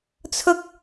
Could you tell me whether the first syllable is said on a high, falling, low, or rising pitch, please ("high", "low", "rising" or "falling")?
high